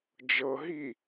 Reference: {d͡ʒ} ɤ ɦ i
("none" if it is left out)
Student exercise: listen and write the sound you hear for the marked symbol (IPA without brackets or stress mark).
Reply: d͡ʒ